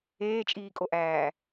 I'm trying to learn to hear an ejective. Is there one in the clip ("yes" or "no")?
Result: yes